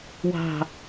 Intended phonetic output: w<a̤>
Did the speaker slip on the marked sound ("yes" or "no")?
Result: no